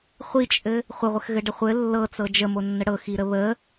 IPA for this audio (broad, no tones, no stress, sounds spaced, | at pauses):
χʷ i t͡ʃʼ ɘ | χʷ ə ʁʷ ɘ x ɣ ɘ ɖ ə χʷ ɘ lː ɤ t͡s ɤ d͡ʒ ə m o nː ə ɽ ɤ x i ɾ ə β ə